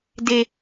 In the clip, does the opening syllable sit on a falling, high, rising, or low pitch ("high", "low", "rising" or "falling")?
low